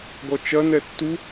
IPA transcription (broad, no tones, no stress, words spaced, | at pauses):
ɡɔt͡ʃɐnɛ tːu